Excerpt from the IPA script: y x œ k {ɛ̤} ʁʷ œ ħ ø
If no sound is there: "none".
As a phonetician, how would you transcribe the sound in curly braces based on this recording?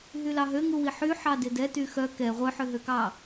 ɛ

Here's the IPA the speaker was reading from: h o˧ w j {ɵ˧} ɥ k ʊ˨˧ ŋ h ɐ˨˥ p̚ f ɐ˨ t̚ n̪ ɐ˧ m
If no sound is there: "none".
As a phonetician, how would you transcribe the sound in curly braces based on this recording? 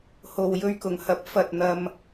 ɵ˧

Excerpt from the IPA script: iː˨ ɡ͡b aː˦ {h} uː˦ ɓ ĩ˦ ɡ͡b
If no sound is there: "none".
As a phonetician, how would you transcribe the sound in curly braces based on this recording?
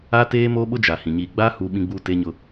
h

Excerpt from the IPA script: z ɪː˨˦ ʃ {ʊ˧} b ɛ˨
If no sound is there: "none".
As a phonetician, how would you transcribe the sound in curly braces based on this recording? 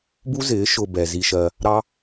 ʊ˧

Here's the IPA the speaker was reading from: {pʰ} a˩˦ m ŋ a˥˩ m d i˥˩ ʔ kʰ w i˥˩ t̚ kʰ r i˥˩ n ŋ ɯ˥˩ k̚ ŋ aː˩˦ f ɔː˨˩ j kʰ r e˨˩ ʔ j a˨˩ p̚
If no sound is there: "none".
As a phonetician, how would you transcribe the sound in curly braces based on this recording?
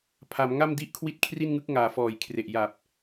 pʰ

